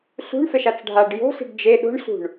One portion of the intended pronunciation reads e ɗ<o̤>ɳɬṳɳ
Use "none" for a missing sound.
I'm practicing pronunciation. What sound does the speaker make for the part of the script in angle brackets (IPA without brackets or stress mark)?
o̤